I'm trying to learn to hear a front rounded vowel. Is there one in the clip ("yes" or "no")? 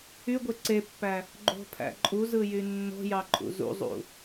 yes